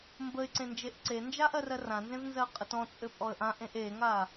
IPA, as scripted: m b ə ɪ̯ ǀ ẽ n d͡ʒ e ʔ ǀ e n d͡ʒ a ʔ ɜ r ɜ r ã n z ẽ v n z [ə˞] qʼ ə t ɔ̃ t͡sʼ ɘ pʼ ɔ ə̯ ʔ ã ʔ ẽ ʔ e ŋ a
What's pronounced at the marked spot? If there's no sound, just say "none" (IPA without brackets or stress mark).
ɜ